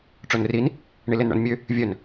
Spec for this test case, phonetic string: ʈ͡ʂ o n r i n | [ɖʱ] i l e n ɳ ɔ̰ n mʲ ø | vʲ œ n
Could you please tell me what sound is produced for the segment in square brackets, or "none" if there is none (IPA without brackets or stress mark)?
ɳ